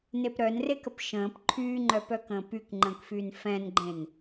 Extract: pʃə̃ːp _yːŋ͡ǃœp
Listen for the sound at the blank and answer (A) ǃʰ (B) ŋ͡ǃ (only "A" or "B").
A